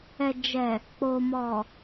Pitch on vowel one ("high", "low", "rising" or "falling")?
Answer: low